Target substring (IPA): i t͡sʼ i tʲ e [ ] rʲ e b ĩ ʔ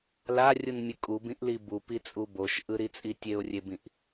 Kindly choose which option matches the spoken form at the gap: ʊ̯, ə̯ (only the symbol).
ʊ̯